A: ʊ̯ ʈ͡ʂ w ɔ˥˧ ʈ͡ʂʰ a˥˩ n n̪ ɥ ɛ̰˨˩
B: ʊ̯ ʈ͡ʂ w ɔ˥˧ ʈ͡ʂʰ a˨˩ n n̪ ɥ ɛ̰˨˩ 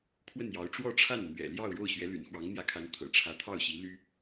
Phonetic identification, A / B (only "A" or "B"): A